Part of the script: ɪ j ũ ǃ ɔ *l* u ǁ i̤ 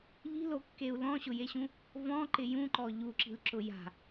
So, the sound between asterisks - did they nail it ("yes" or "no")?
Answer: no